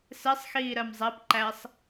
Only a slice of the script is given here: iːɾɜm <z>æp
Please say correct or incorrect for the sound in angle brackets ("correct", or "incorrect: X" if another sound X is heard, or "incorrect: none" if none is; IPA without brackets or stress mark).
incorrect: zˤ